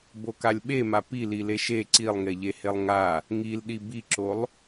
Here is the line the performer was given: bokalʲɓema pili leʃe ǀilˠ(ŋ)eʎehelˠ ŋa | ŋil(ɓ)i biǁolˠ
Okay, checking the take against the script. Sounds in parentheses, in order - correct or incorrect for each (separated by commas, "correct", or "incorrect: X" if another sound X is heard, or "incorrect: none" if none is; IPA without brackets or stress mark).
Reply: correct, incorrect: ɗ